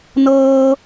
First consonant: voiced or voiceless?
voiced